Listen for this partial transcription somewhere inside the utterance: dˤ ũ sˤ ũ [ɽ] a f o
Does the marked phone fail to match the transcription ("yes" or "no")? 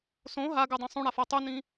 no